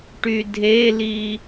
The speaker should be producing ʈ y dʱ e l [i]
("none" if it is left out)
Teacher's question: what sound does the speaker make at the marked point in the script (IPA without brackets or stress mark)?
i